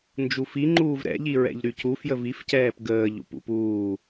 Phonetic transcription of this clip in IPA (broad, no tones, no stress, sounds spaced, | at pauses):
n d͡ʒ u f i ŋ͡ǃ uː v ɾ ɛ̰ ʎ i ɹ ɛ̰ ʎ ɾ y c u f j ə v i f c ɛː p ɡ əː ʎ ṵ p ṵ p uː